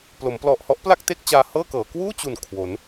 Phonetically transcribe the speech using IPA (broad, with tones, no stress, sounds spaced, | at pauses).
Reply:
p l o˩˦ m p l ɔ˨˩ ʔ h ɔ˦˥ ʔ p l a˥˩ k̚ t e˥˩ k̚ t͡ɕ aː˧ h ɤː˥˩ k ɤː˩˦ k w uː˥˩ t͡ɕ u˨˩ n kʰ w o˩˦ n